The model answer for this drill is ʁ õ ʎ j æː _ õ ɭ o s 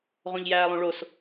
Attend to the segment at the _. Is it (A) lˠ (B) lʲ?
A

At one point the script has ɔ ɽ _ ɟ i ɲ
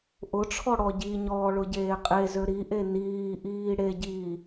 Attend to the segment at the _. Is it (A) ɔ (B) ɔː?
A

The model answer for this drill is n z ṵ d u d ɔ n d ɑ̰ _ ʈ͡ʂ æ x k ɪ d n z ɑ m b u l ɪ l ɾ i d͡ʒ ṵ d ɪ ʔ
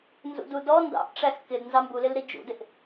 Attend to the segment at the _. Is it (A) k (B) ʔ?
B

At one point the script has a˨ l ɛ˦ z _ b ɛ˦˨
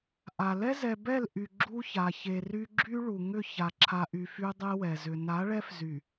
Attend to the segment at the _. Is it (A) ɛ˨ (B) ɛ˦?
A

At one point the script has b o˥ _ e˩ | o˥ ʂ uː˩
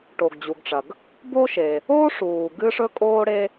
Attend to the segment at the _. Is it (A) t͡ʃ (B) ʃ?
B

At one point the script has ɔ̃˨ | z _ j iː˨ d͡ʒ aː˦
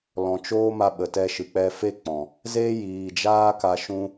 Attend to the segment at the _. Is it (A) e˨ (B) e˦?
B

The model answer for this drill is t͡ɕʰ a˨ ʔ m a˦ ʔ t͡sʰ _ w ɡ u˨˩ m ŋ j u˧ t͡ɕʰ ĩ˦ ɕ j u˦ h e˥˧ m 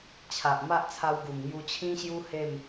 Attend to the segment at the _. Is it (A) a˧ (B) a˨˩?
A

